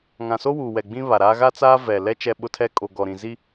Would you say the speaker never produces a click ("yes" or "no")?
yes